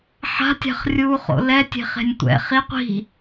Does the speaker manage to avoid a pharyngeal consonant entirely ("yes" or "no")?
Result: no